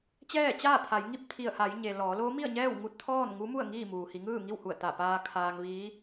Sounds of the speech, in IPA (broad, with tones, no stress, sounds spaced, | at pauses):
t͡ɕ ɛː˥˨ t͡ɕ aː˥˨ t̪ʰ a˩˧ j ŋ i˥˨ p̚ t̪ʰ i˧˩ ə̯ h a˩˧ j ɲ e˩ l ɔː˩˧ l oː˧˥ m i˥˨ ə̯ ɲ ɛː˥˨ w ŋ u˧ t̚ t̪ʰ ɔː˥˨ n ŋ u˧˥ m u˥˨ ə̯ ŋ iː˥˨ m uː˩ h i˩˧ ŋ ɯː˥˨ ŋ i˥˨ w h u˧˩ ə̯ t̪ a˧˩ p aː˧ kʰ aː˧ ŋ ʋ iː˧˥